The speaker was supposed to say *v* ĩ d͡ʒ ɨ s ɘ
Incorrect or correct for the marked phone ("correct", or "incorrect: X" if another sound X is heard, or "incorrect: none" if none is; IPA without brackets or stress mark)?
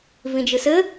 correct